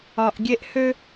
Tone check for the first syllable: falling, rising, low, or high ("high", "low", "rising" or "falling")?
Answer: low